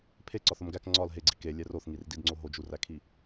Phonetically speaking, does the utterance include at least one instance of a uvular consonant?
no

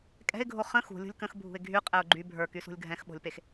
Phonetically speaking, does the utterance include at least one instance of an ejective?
yes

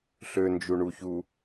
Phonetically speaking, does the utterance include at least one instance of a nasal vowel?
no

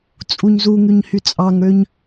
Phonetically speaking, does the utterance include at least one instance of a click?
no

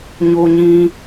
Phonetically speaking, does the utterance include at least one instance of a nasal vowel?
yes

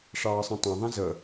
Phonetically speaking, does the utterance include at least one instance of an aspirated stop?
no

